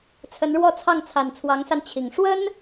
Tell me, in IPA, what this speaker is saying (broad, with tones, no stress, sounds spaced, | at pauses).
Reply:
t͡sʰ ə˧˥ n ɻ w ɔ˥˧ t͡sʰ ɑ˥˩ ŋ t͡sʰ a˨˩ n t͡sʰ w ɑ˧˥ ŋ s a˧ n t͡ɕʰ i˨˩ ŋ ʂ w ə˥ n